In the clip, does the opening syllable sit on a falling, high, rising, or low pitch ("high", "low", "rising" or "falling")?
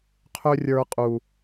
high